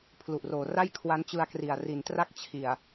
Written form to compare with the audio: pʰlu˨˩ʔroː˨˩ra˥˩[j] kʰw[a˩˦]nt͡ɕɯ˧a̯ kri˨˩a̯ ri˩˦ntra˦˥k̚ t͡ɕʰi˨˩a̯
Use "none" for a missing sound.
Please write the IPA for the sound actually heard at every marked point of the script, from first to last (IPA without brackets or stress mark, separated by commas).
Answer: j, a˦˥